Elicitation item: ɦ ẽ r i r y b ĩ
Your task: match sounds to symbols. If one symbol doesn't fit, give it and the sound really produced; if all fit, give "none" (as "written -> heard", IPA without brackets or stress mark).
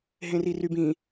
none